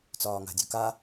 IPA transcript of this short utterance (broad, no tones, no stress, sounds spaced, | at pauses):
t͡s ɒː ŋ a̤ dʲ u k a